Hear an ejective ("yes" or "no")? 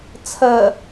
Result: no